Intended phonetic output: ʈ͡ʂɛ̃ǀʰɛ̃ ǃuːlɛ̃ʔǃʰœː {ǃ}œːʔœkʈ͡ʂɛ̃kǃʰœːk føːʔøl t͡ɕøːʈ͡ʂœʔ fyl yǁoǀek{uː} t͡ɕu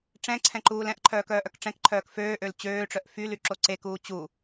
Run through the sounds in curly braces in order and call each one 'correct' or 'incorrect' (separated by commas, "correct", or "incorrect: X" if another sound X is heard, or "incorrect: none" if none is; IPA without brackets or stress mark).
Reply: incorrect: k, correct